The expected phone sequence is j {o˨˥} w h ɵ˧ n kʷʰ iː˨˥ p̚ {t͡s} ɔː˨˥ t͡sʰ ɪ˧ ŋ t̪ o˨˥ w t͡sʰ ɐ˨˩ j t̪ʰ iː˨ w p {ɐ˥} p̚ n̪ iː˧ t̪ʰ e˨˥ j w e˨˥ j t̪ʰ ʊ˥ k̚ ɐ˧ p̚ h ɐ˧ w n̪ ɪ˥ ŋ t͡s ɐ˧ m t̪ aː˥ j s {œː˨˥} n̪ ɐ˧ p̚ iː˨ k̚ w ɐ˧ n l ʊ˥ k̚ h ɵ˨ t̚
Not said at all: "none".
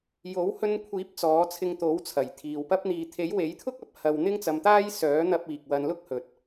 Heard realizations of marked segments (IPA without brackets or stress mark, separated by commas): o˨˥, t͡s, ɐ˥, œː˨˥